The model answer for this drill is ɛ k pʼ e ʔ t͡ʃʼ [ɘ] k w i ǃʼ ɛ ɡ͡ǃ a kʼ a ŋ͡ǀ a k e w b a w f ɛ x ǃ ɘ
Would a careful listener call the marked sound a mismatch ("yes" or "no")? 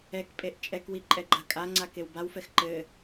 yes